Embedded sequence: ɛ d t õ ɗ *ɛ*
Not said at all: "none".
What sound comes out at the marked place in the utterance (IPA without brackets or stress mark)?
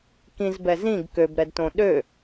ø